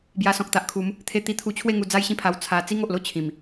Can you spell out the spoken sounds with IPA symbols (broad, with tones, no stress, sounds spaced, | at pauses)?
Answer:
b j a˧ s ɔ̃˨ k̚ t̪ a˨ ʔ kʰ u˨˦ m | t̪ʰ e˧ t̪ i˧ t̪ʰ u˧ t͡ɕʰ w e˥˧ ŋ u˧ d͡z a˦ j ɕ ĩ˦ pʰ a˧ w t͡sʰ a˧ t͡s i˦ ŋ o˨ ʔ l o˥˧ t͡ɕʰ ĩ˨˩ m